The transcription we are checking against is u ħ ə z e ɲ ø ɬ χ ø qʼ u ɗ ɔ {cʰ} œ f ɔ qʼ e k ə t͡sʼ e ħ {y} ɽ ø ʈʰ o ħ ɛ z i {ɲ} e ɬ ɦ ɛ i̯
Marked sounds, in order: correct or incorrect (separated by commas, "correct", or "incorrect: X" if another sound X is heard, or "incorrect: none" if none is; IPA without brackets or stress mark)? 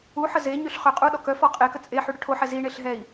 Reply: incorrect: k, correct, incorrect: ɳ